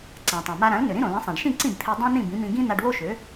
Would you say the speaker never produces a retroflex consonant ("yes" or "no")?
no